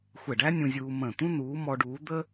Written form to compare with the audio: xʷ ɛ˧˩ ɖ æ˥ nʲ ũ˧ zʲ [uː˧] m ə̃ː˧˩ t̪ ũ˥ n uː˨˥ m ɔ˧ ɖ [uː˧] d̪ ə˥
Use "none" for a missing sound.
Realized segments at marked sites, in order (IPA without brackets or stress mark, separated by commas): uː˧, uː˨˥